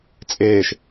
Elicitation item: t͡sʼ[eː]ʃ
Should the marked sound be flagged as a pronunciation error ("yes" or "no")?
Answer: no